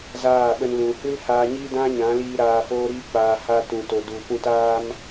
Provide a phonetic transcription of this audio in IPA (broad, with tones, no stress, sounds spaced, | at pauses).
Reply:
z aː˦˨ ɓ ə˧ n l ũ˨ h ɨ˦ l h aː˧ ɲ iː˦ d ã˦ ɲ ã˨˦ l iː˧ ɾ aː˧ f oː˦ ɾ iː˦ k͡p aː˧ h a˧ t ũ˧ t o˧ d u˧ p ũ˧ t aː˦ m